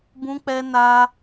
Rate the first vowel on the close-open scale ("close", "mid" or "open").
close